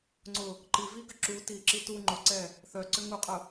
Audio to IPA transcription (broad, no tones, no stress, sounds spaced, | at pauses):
ŋ͡ǀ ʊ | ǃ i v i ɡ ʏ ǁ u t i ǁ i t u ŋ͡ǃ ʊ ǀ ɛ | θ œ ǀ ʏ ŋ u qʼ ʊ